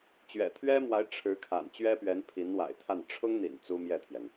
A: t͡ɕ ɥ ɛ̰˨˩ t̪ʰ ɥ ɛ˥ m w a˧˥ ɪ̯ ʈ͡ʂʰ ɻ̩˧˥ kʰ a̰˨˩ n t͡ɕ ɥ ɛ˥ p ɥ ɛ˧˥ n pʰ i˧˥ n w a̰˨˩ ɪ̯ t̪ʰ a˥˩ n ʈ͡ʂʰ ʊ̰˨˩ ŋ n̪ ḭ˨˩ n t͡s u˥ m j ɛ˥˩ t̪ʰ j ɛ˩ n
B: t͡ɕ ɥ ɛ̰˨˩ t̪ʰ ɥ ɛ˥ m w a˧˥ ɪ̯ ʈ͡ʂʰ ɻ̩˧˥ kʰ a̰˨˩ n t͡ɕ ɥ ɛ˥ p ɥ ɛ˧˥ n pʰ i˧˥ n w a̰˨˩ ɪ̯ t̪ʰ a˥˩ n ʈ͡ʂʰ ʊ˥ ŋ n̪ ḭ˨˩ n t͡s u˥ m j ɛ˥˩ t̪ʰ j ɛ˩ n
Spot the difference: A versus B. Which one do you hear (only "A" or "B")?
B